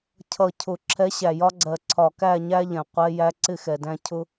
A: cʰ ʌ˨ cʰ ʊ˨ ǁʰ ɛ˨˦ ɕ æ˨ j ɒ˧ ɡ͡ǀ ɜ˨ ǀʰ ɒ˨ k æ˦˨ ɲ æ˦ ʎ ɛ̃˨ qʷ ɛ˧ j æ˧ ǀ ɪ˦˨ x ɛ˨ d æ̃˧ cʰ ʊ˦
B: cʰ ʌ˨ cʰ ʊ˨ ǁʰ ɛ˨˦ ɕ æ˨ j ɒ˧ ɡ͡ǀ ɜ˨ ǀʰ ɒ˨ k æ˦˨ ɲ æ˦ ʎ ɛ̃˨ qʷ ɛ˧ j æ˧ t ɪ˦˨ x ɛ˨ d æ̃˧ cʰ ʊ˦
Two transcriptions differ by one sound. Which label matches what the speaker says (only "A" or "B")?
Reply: A